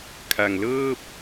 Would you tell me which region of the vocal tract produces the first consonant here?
velum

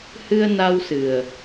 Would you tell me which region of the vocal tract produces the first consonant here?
throat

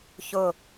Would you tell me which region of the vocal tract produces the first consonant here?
palate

